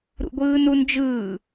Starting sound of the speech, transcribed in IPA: ɾ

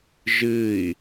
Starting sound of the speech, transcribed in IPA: ʒ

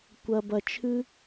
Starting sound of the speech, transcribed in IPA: kʷ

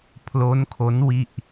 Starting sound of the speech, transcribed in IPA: pʰ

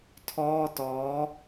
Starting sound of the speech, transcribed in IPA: tʰ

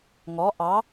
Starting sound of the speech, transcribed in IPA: ŋ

